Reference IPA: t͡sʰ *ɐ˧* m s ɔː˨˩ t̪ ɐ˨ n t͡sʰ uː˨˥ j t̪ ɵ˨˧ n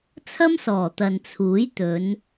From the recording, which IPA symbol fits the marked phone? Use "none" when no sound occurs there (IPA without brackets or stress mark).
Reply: ɐ˥